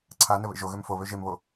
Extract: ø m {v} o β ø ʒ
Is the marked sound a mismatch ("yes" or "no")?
yes